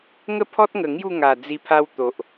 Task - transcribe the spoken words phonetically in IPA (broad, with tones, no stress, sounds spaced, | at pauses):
ŋ ə˥˧ pʰ ɔ˦ t̚ ŋ ə˨˩ ŋ j u˥˧ ŋ a˨˩ d͡z i˧ pʰ a˧ w t̪ o˨ ʔ